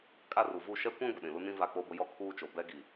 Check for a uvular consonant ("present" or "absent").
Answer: absent